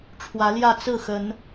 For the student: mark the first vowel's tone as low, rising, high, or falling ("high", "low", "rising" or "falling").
rising